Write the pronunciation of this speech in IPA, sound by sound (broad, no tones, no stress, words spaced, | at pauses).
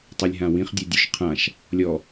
tˤalʲɦãwĩχ dʲudʲuʃqʰãʃ | lʲɔ